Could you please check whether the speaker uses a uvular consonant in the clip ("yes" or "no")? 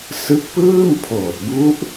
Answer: no